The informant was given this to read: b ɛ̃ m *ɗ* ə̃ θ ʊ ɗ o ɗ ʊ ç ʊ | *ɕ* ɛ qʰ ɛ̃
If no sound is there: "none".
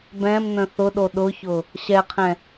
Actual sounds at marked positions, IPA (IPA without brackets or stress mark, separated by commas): n̪, ɕ